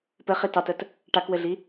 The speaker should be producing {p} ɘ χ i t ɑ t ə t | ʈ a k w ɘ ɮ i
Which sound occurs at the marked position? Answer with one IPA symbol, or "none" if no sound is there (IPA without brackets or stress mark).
p